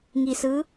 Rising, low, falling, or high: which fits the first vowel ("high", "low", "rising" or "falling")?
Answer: low